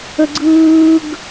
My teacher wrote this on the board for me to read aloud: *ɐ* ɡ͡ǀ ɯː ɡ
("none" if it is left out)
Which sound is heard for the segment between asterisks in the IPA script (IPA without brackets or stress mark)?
ə